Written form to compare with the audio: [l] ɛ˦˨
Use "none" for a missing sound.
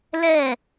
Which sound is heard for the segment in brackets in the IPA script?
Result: l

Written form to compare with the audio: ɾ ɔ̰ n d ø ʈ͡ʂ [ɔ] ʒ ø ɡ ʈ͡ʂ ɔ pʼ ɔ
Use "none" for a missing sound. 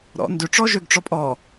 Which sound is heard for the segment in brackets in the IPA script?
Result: ɔ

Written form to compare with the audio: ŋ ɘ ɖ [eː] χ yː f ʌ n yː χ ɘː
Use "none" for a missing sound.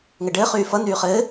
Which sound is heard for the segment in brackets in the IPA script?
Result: ɘː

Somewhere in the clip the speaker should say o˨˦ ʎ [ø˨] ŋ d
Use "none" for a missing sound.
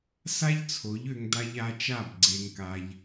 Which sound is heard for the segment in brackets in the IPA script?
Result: ø˧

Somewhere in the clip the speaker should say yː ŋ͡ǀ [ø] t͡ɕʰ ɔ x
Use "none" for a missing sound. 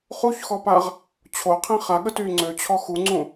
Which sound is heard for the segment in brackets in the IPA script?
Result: ø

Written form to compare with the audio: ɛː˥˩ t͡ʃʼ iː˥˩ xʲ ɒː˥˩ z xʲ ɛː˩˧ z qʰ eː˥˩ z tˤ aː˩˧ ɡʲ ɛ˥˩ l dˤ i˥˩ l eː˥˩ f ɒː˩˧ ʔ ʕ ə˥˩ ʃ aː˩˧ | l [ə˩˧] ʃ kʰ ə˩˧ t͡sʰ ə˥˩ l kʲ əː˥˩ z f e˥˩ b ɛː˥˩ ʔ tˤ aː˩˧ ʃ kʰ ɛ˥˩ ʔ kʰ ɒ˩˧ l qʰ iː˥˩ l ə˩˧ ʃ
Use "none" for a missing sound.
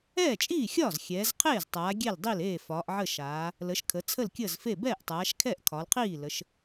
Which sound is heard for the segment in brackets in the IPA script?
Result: ə˩˧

